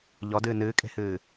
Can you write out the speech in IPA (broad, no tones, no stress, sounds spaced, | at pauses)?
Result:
ʎ ɔ d ɨː n ɨː kʼ e̤ h ɨː